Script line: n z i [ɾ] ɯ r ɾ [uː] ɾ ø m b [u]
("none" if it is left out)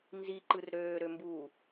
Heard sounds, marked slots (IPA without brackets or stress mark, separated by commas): ǃ, øː, uː